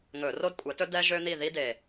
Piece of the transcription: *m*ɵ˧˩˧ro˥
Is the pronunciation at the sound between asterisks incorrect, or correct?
incorrect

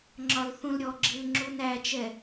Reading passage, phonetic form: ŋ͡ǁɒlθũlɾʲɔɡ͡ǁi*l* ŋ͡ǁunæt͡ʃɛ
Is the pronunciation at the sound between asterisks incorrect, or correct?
correct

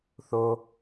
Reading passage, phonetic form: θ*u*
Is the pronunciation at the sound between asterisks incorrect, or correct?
incorrect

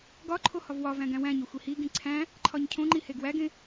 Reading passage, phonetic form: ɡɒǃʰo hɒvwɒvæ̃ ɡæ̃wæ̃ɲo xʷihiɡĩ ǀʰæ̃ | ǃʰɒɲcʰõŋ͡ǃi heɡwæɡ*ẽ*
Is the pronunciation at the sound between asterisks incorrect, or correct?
correct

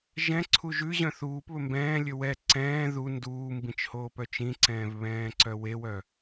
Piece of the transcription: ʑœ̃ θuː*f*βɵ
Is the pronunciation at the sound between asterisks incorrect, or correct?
incorrect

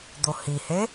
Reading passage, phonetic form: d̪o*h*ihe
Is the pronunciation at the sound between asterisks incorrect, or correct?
correct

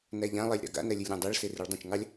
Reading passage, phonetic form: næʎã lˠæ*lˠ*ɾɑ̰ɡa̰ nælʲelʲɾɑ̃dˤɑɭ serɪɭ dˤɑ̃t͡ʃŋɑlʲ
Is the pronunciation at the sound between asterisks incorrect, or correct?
incorrect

